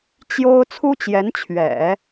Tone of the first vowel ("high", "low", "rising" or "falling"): high